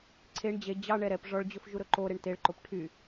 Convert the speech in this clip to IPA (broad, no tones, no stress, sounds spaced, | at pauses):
ǀʰ e ɳ d͡ʑ e d͡ʑ ɑ ɳ ɛ ɾ ɛ p ʐ ɔ ɭ d͡ʑ ɵ f ʒ u ɾ ɵ ǃ o ɾ e ɳ t e ɭ ǃ o p ʈʰ y